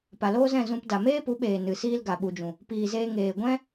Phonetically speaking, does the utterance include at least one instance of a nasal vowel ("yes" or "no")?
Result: yes